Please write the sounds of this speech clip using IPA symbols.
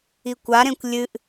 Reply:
ikʷaɾẽkʷ lʲɨʔ

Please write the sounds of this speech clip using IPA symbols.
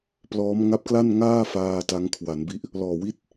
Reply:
plɔː˦˥m ŋa˦˥p̚kla˥˩nŋaː˥˩ faː˧ ta˦˥ŋkʰwa˩˦nbi˥˩ʔ | lɔː˨˩wi˥˩t̚

